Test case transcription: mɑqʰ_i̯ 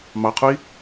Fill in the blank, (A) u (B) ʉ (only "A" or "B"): A